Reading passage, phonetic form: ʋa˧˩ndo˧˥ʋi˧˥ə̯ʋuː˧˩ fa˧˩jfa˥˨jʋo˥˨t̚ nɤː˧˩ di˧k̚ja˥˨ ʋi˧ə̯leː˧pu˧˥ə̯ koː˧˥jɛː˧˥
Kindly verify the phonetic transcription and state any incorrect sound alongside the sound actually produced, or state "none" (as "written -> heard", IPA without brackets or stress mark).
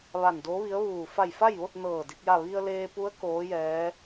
none